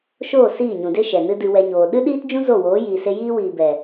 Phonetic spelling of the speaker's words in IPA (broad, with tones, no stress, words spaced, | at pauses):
ʃoː˦˨ siː˦˨ɲũ˨ de˦ʃɛ˨ nɨ˦dɨ˧wɛ˧ ɲoː˨ ɗɨ˦ɗiː˦td͡ʒũ˦ zo˦˨ woː˨˦jiː˨ se˧jiː˦wiː˨ bɛ˨